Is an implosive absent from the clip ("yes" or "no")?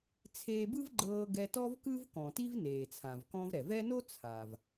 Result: yes